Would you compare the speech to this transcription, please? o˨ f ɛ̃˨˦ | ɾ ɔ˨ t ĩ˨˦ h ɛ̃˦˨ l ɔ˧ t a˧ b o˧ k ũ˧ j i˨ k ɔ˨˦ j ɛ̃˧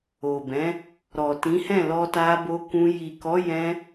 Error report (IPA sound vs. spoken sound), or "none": f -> b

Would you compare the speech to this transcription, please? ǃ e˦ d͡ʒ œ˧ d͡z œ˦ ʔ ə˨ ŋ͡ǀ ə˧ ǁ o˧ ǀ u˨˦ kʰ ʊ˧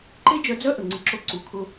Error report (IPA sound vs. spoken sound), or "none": none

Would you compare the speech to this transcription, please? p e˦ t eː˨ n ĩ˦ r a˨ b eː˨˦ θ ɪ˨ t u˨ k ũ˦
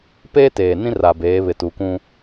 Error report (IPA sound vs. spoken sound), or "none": θ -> β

